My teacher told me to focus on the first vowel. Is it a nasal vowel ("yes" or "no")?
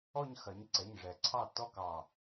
no